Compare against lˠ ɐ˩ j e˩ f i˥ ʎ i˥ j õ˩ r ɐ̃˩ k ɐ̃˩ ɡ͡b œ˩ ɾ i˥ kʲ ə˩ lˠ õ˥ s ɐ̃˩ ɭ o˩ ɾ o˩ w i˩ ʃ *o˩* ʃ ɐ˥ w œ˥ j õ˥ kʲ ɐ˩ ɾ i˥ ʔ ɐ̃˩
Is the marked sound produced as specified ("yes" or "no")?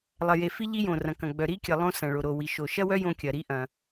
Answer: yes